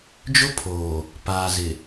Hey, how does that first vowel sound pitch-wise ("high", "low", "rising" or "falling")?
high